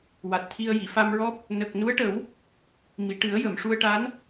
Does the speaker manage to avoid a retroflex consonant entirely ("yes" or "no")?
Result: no